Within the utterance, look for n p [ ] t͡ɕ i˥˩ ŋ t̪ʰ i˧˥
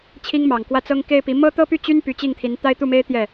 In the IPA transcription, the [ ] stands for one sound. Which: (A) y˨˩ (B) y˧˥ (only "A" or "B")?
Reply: B